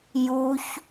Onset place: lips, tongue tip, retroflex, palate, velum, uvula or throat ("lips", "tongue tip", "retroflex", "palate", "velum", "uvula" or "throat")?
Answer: palate